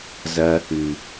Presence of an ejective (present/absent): absent